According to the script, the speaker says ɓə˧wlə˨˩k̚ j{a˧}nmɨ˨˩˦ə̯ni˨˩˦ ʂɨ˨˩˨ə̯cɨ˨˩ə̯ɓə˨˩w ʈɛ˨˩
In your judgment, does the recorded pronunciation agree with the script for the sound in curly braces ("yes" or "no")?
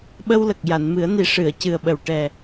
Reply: no